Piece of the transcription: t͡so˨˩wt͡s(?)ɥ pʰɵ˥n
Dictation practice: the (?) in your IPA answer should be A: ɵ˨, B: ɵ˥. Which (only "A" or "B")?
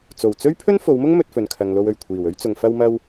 B